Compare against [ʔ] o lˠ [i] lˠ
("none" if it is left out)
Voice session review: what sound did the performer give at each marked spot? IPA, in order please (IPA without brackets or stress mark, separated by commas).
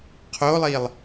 qʰ, i